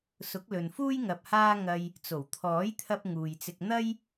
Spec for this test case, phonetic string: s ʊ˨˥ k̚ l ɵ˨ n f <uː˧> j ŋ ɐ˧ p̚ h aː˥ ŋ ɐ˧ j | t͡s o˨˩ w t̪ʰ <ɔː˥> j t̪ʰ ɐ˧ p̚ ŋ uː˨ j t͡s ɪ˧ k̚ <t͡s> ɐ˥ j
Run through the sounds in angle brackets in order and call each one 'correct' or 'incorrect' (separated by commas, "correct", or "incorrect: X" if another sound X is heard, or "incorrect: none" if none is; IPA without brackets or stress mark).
incorrect: uː˥, incorrect: ɔː˨˥, incorrect: n̪